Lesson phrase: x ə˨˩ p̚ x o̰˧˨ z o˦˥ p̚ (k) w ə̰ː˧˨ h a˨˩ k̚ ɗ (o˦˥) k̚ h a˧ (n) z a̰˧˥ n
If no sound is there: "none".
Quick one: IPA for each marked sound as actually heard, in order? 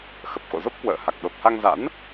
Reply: k, o˨˩, ŋ

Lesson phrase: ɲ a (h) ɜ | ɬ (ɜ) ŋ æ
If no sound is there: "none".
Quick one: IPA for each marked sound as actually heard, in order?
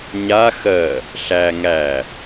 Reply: x, æ

